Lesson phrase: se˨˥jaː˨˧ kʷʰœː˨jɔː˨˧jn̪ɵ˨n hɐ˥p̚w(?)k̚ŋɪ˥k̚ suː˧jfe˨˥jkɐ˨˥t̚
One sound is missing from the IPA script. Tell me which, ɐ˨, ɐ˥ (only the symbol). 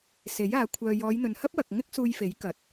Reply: ɐ˨